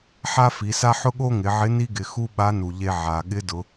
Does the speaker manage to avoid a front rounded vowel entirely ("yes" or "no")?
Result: yes